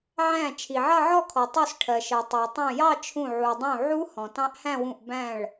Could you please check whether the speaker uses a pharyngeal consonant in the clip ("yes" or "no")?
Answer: yes